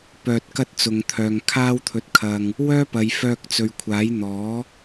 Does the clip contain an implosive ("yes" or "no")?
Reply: no